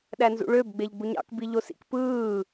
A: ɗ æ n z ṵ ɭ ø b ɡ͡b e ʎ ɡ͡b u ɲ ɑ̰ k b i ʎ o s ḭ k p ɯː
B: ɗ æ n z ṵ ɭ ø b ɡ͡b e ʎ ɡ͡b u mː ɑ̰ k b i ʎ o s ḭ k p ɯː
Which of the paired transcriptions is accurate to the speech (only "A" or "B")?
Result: A